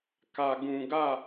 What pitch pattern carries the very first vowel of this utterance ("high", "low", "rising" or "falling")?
low